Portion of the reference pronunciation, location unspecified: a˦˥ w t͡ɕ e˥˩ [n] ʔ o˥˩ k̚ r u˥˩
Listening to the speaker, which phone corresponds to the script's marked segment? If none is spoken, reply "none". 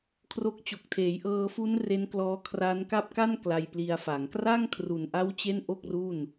n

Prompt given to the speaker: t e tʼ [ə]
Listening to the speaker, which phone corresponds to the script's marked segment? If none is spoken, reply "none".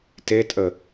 ə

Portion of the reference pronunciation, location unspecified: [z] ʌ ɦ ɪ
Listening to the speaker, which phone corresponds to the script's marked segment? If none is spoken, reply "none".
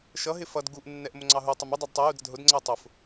ʃ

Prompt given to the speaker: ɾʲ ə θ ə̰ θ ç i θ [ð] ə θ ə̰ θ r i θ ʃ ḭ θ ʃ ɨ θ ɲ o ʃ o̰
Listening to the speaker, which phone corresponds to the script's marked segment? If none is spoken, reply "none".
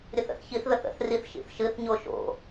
ð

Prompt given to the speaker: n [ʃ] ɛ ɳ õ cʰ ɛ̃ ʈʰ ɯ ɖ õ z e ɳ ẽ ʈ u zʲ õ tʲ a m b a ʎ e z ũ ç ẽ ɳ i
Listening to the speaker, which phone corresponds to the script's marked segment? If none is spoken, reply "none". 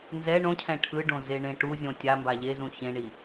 z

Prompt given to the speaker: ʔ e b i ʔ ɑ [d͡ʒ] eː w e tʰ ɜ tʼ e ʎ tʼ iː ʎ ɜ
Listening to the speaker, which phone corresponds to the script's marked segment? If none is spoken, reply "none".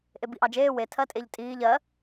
d͡ʒ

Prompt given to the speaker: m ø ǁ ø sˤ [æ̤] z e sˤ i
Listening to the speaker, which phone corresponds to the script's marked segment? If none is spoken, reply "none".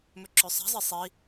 æ̤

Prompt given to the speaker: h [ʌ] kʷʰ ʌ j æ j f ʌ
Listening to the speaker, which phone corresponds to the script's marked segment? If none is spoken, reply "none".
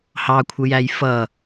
ɑ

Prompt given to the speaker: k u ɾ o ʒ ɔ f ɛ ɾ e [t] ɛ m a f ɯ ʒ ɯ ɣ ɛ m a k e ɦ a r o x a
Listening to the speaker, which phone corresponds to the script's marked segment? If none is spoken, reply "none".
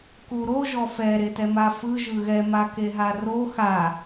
t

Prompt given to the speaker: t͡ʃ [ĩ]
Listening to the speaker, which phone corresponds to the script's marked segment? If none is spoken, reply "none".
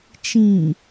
ĩ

